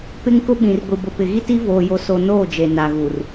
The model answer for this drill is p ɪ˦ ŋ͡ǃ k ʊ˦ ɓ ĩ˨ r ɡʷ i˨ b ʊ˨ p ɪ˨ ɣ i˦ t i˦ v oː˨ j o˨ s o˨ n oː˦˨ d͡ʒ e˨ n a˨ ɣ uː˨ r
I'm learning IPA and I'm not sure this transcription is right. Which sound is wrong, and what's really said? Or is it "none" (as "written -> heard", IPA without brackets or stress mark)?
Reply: ŋ͡ǃ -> ŋ